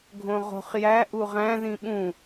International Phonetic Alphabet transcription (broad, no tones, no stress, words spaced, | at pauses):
ɡʱõʁo̤χ jæ ʔuʁæ̃ ðĩɓũ